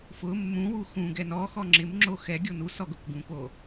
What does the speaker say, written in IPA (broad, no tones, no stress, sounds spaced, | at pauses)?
f ʊ mː ũ w u x ũ ɡ ɛ n ɔ x ɔ ŋ͡ǁ ɪ m ŋ͡ǁ o x ɛ ɡʲ o n u s ɔ ɡ ʊ k ɡ ũ k o